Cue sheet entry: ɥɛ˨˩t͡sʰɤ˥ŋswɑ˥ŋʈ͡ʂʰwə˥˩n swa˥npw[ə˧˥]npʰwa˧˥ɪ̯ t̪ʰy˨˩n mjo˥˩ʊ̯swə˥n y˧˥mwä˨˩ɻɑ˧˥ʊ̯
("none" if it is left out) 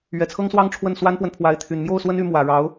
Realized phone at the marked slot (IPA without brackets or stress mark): ə˨